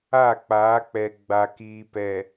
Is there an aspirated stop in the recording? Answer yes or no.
no